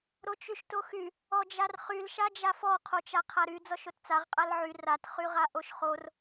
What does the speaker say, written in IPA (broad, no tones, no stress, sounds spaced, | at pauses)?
ɾ o t͡ʃ y ʃ t o x y | ɔ d͡ʒ a r χ y l ʃ a d͡ʒ a f ɔ qʰ o t͡ʃ a qʰ a ɾ y d͡z ɔ ʃ o t t͡s a ʁ qʼ a l ʕ y r a t χ y ʁ a ʔ o ʃ χ o r